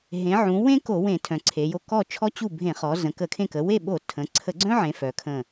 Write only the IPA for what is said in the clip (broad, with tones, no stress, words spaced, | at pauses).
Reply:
ɦẽ˩˧ʕũ˩˧wẽ˦ ko˧˩˧wẽ˧˩˧ tʰœ̃˩˧ǀʰe˩˧jo˦˨ kɔ˦˨t͡ʃʰɔ˦ t͡ɕu˦˨bʱẽ˧˩˧χɔ˩˧ zə̃˩˧kə˧˩˧kʰẽ˦˨ kə˩˧we˦˨ɓo˧˩˧ tʰə̃˩˧ ǀʰə˧˩˧ɡ͡ǀœ̃˦ʕẽ˩˧ fœ˩˧kʰə̃˦˨